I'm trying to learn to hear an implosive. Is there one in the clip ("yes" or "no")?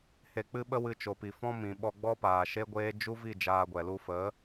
yes